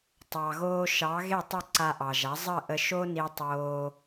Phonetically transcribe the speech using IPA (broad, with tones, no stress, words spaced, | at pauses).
tˤɑ˩ɣoː˧ ʃɑ˩˥ ɣe˥˩tˤə˥˩ ǀa˧ʔɑ˩ʒa˩˥ zˤə˥˩ ʔə˧ʃo˥ni˧ tˤoː˧